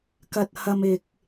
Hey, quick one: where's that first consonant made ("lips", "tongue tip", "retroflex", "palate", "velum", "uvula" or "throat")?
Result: velum